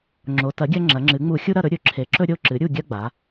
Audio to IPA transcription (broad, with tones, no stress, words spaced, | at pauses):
ŋ͡ǁo˩˧tɐ˩˥ɡʲɐ˦ ŋ͡ǁɐ˩˧ŋ͡ǁɨ˩˧ŋ͡mu˧˩˧ xʲu˦ɾɐ˦˨ɾɵ˦ ɾʲɵ˧˩˧ǁʰe˩˥ǁɵ˦ ɾʲo˦˨ǁɨ˩˥ɾʲu˦˨ ɡʲɐ˦ɡ͡ba˩˧